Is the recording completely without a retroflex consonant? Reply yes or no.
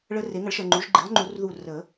no